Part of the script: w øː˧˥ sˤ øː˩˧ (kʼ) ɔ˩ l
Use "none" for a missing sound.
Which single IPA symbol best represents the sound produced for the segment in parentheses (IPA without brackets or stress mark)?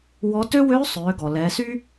ɡ